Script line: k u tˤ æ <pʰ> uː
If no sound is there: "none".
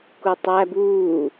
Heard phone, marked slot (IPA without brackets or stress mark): b